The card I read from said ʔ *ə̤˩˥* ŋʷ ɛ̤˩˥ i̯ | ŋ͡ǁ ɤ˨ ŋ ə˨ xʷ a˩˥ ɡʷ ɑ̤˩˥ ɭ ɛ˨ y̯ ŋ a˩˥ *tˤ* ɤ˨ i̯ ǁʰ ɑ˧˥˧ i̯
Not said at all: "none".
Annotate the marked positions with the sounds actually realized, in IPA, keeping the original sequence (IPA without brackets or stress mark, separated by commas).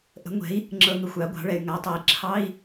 ə̤˩˥, tˤ